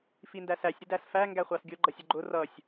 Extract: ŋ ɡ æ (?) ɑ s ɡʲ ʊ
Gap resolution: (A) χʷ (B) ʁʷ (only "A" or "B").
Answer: A